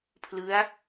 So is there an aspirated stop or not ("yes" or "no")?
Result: yes